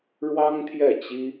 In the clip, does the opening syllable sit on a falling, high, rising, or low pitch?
high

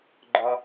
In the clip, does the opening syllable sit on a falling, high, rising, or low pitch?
high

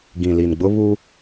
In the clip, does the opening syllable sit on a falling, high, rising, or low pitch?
low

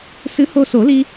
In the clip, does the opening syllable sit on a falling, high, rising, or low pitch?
rising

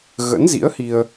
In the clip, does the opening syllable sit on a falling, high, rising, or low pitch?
rising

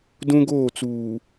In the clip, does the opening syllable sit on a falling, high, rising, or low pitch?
high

